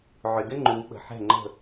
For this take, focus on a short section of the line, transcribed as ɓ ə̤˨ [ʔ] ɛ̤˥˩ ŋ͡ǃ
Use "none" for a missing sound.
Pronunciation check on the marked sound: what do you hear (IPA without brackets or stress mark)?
ħ